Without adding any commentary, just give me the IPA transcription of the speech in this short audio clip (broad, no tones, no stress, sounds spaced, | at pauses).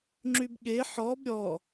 ŋ͡ǁ y b ɠ e ħ ɔ b ɾʲ ɔ